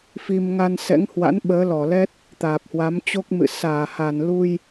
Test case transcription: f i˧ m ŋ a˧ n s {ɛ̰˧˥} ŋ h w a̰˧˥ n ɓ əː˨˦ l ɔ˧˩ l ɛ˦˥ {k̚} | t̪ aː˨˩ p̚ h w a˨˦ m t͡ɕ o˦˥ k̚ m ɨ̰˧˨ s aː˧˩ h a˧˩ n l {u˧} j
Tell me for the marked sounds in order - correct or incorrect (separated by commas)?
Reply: correct, incorrect, correct